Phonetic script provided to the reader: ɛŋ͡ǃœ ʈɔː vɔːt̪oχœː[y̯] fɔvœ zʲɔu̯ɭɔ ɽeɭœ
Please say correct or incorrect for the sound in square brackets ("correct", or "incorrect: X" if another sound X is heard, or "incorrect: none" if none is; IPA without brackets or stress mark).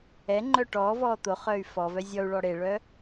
correct